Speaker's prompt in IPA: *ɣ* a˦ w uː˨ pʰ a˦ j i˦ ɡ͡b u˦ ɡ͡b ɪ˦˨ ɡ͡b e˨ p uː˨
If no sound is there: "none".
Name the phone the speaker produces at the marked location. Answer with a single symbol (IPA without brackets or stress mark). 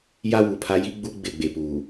j